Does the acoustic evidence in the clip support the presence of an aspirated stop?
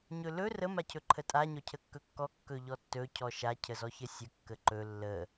yes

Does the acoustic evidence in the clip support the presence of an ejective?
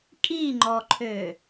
yes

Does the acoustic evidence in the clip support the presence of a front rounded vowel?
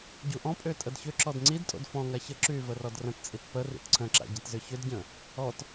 yes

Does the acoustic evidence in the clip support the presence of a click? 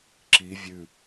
yes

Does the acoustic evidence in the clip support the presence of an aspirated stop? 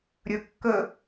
no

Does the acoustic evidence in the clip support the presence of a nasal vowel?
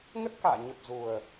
no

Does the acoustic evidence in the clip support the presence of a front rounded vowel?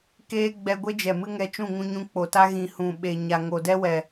no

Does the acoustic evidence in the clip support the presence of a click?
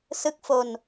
no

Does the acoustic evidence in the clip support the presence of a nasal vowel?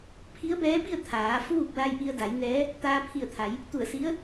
no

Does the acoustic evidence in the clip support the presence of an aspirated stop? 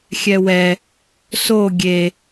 no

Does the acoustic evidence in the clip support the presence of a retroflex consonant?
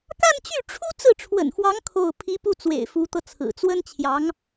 yes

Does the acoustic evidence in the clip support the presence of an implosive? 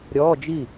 no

